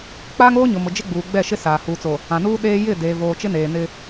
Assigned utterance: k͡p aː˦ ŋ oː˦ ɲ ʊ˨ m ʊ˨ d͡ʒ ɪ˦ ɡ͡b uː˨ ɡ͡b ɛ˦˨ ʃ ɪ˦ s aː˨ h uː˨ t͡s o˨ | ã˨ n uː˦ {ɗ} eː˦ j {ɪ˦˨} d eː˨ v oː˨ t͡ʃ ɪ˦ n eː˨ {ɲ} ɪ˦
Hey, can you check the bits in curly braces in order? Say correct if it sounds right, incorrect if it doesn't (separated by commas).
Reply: correct, correct, incorrect